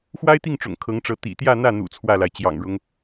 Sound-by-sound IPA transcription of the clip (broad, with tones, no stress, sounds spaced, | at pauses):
x w a˥ ɪ̯ t̪ i˥˩ ŋ ʈ͡ʂ ʊ̰˨˩ ŋ kʰ ɤ˧˥ ŋ ʈ͡ʂ ɤ˧˥ t̪ ḭ˨˩ t̪ j ä˥˧ n̪ ä˥˩ n̪ ṵ˨˩ t͡sʰ w ä˥˩ l a˩ ɪ̯ t͡ɕ j ɑ̰˨˩ ŋ ɻ ʊ˦ ŋ